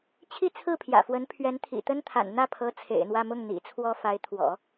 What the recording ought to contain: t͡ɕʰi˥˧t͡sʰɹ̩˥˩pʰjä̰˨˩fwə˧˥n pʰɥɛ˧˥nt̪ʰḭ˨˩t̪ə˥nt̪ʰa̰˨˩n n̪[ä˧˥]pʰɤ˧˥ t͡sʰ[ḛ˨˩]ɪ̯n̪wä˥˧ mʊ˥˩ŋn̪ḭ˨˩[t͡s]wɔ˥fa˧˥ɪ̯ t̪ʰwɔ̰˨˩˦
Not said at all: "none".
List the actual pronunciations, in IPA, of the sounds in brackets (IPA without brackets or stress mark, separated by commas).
ä˥˩, ḛ˨˩, t͡sʰ